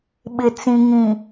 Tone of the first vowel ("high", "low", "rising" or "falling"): low